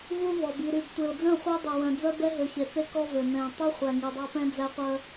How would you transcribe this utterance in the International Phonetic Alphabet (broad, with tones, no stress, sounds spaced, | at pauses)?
v u˦ v ɔ˨ b i˨ ɾ y˨ b tʷ e˨ ʊ̯ d͡z œ̃˦˨ χʷ æ˦ dˤ ɛ˨ w œ̃˨ d͡z œ˦ b ɛ˦ ɦ ø˨ ç e˨ t͡s e˦ k ɔ˦ v ø˨ n ɛ̃˨ tˤ u˦ χʷ æ˨ ŋ i˨ dˤ ɑ˦ p ɛ̃˦ d͡z æ˦ qʷ œ˦